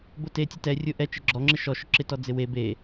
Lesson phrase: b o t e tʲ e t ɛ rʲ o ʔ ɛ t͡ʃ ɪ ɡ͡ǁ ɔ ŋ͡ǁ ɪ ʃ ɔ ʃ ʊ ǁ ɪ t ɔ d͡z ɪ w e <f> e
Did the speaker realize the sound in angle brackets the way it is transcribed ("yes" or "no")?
no